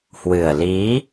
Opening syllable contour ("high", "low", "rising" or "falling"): low